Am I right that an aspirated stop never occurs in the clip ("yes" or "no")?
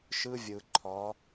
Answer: no